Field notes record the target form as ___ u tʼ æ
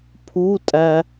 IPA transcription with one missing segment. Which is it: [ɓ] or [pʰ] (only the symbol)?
pʰ